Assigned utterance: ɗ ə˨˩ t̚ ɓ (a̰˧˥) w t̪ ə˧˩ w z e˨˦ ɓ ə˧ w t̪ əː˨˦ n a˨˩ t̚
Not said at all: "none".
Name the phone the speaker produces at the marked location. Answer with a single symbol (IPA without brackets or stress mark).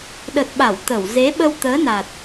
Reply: a˧˩